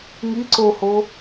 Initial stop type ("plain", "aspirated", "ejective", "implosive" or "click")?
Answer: click